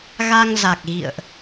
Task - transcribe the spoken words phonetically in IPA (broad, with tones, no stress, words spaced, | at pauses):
ɣa˧ŋ za˨˩k̚ɣḭ˧˨ə̯ʔ